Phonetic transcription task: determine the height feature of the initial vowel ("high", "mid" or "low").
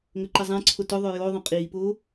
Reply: mid